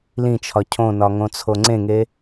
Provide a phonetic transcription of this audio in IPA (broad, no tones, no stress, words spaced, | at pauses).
lĩt͡ʃʰɒ cʰõnɒŋõt͡sʰo ŋ͡ǀẽŋe